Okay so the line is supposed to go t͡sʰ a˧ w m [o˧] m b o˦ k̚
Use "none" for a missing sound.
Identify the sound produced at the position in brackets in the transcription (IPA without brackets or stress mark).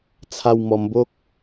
ɔ˧